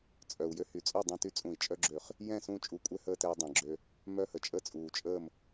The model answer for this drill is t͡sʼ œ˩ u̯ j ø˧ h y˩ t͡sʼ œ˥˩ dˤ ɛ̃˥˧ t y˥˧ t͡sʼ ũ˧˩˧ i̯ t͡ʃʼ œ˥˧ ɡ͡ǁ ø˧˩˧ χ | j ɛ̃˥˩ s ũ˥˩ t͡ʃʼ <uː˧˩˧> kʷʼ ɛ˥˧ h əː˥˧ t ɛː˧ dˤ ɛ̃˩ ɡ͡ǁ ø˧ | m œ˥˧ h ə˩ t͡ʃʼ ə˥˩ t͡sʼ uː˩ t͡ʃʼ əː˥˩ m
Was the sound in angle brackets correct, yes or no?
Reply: no